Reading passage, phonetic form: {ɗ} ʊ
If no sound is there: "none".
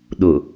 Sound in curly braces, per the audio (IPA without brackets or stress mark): ɗ